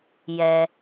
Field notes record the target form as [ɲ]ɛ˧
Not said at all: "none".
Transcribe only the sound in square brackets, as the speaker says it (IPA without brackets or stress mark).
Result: j